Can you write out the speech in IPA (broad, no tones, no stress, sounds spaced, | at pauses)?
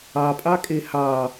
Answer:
ɑ pʼ ɑ kʼ e h ɑ